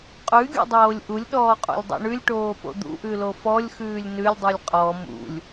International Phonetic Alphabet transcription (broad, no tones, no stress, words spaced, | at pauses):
qʼʉɡʲṵdˤoːlʲ ʔulʲɗɔːqʼṵlʲdˤo̰ ɳʉlʲʈoːpo̰ d̪ṵʔʉlo fɔlʲxʉːlʲ nʉlʲdˤʉlʲ qʼɔ mṵlʲ